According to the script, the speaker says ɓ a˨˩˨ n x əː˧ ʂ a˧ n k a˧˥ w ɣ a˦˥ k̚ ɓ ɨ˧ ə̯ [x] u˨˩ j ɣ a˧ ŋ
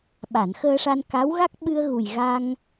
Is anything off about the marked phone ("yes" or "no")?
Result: yes